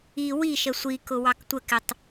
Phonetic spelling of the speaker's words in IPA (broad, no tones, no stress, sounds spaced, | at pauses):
i w i ʃ ə sʷ i k ʊ w ɑ k tʷ ə k ɪ tˤ